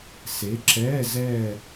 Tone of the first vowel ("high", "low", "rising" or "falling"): rising